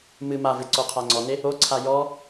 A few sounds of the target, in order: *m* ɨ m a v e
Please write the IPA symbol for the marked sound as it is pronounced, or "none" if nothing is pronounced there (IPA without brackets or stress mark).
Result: m